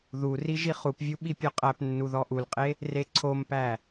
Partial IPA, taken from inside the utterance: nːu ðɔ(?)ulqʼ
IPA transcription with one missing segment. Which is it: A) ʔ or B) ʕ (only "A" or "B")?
A